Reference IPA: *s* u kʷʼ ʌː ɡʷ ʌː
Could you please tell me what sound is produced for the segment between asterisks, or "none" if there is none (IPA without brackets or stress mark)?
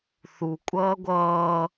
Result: θ